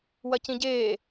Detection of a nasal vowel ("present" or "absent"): present